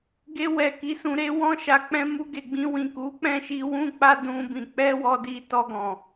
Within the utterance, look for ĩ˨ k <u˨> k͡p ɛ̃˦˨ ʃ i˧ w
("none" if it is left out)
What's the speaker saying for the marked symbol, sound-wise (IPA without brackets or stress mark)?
u˨˦